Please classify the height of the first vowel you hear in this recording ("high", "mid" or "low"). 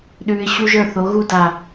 high